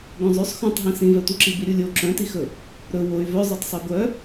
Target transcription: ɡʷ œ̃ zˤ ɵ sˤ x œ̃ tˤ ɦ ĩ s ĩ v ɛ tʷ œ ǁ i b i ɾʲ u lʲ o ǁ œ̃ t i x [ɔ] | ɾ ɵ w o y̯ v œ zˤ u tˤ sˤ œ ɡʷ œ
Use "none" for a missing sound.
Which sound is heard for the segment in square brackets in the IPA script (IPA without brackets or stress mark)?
ɵ